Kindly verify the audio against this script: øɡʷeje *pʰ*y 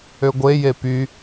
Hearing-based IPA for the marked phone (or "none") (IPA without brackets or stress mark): p